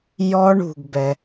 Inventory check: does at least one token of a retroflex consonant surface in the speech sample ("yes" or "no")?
yes